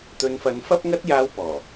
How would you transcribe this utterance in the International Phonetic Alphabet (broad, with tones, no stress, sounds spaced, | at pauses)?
t̪ ɵ˨˧ n f ɐ˨˧ n f ɐ˥ p̚ ŋ ɐ˥ t̚ j aː˥ w p ɔː˨˩